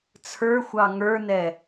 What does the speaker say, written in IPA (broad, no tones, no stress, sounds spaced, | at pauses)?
t͡sʰ ə˞ xʷ ɑ ŋ ə˞ n ɛ